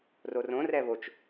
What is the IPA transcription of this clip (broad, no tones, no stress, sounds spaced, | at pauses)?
r o r õ r ɛ β o t͡ʃ